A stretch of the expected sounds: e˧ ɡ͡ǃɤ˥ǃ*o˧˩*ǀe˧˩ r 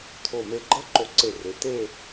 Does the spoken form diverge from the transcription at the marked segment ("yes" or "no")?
no